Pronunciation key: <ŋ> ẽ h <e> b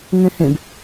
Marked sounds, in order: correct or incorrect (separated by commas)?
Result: correct, incorrect